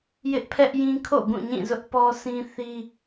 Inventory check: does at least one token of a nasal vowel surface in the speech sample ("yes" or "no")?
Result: yes